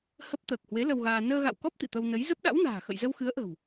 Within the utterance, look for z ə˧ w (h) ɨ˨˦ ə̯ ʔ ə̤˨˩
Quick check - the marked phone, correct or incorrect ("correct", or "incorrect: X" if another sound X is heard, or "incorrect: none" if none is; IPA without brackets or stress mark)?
incorrect: x